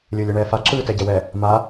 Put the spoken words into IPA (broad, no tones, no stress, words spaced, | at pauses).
lʲɯːlʲɯɳɛːfa ǁɯːtɛɟɛwɛ | ma